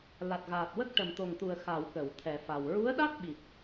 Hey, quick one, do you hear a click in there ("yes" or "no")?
no